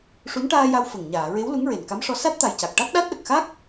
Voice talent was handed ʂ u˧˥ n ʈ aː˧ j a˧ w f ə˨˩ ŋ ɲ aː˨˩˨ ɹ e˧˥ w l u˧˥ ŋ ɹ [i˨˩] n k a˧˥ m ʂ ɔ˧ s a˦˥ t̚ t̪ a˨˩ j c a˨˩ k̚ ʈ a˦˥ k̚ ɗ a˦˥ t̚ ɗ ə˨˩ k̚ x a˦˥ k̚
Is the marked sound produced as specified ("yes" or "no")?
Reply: no